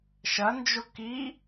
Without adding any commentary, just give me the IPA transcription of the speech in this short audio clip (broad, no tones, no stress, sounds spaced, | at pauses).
ʃ ɐ n d͡ʒ o k i